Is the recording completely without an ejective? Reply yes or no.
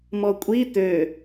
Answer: no